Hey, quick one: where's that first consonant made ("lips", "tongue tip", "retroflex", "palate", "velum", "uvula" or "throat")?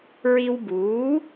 tongue tip